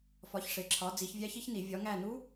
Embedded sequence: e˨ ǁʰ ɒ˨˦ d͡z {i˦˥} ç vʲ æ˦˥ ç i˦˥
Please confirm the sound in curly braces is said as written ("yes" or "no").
no